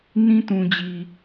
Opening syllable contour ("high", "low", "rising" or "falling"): high